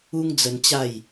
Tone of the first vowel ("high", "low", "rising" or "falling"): high